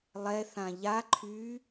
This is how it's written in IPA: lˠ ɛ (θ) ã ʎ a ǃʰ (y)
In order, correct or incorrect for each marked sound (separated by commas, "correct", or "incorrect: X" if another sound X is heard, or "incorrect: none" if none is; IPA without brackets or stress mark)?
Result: correct, correct